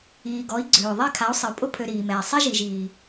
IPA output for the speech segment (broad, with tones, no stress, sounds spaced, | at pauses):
iː˨ ɡ ɔ˨˦ i̯ ɡ͡ǀ øː˨ ðˤ e˦˨ kʰ a˨˦ u̯ sˤ ɪ˨ u̯ pʼ ʊ˦ pʰ ø˨ ɾ iː˨ m ɛː˨ sˤ e˦ ʒ i˨ ʒ iː˨